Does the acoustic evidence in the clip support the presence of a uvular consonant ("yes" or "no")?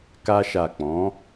no